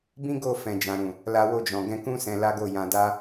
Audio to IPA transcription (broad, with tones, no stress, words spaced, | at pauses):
bĩ˦ɡo˦˨fɛ̃˨d͡ʒã˨ ɾũ˨ | la˧wo˧d͡ʒɔ̃˨ ɡɛ̃˧kũ˦ sɛ̃˧la˦ɡo˦˨jã˧ da˦